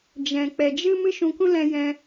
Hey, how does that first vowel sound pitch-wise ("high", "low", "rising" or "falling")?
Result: low